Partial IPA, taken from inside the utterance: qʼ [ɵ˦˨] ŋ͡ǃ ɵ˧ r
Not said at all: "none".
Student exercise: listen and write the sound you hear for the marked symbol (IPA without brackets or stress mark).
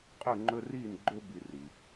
ɵ˦˨